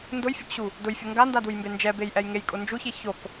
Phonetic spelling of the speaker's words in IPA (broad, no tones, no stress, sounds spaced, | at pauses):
n d ʊ j fʲ ʊ k ɕ u | d ʊ j fʲ ʊ ŋ ɡ a n d a d u j m b e n d͡ʒ ɛ b e j ʔ ɛ j ŋ e j kʼ ʊ n d͡ʒ u ç i ç o k